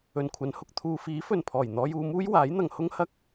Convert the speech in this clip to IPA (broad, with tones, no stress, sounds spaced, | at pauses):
ɵ˨ n kʷʰ ɐ˨˥ n h ʊ˨ k̚ t̪ʰ uː˨ f iː˨˥ f ɵ˨ n pʰ ɔː˨˩ j n̪ ɔː˧ j uː˧ m uː˥ j w aː˨˥ j n̪ ɐ˨ ŋ h ʊ˥ ŋ h ɐ˥ k̚